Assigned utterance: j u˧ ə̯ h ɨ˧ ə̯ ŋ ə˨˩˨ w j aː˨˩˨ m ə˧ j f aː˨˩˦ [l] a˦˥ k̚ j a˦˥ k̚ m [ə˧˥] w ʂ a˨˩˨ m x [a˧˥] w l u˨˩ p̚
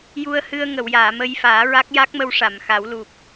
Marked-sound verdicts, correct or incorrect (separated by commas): incorrect, incorrect, incorrect